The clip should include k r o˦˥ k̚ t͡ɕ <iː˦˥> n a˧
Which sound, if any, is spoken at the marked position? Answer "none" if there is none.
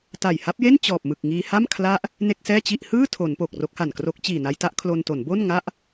iː˨˩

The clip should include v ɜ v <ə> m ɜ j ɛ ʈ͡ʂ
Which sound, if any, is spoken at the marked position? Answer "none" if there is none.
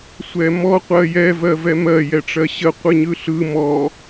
ɛ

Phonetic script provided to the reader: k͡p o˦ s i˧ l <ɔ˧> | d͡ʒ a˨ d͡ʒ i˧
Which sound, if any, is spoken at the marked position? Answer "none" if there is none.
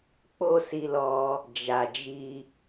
ɔ˧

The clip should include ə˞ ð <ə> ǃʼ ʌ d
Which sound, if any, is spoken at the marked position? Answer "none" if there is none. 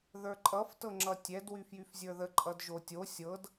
ə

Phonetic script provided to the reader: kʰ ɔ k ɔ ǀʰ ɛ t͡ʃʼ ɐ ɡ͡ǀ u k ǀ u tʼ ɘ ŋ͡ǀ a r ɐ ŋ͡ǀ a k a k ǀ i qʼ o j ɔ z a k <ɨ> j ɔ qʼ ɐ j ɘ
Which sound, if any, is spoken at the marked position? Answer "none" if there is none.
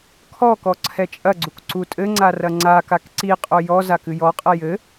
ɨ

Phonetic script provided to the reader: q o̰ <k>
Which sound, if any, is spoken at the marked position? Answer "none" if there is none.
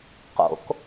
k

